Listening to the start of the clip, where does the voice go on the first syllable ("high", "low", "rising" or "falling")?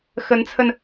rising